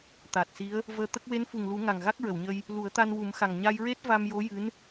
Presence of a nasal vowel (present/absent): absent